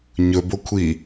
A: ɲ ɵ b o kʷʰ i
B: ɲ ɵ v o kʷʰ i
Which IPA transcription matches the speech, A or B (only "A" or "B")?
A